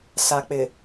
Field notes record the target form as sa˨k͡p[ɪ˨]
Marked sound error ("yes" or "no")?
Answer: no